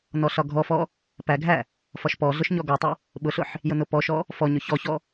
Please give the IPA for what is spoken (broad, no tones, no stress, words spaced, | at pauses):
nɔɬɒɡʱɔfɔ | pæɡʱæ | fɒʃpɔɮʊʃ ɲɔɡɔtˤɪ | ɓʊɬʊħ | jʊnʊpɔʃɔ | fɔɲʊ çɔçɔ